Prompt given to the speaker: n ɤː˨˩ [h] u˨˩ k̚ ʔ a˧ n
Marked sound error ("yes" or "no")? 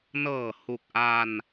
no